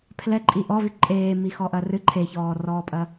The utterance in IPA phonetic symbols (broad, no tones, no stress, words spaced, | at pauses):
pʰlɛ ǃʼiʔɔvi ǃʼeːmixɔ ʔɐrɨ ǃʰeçɔːrɔːpʼɐ